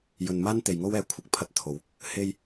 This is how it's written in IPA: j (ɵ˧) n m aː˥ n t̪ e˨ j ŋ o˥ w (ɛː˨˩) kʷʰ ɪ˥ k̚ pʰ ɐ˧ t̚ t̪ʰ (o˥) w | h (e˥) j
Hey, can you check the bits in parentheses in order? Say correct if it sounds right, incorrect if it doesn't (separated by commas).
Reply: incorrect, incorrect, incorrect, correct